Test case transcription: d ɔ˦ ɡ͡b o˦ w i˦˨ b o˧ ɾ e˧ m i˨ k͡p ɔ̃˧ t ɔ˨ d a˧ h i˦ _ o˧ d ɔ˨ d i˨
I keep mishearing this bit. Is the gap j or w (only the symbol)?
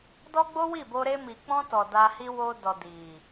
w